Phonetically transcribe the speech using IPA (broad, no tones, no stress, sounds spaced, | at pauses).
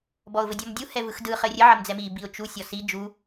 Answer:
b ɔ ʊ̯ v ɘ dʲ ɔ m dʲ u h ɛ v ɯ x d ɯ χ ɘ rʲ ɘ ʕ ə m d͡z ɛ m i b i ʊ̯ t͡ʃ u sʲ ɔ s i d͡ʒ u